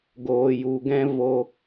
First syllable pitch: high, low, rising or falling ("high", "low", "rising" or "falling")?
low